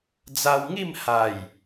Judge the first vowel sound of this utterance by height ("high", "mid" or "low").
low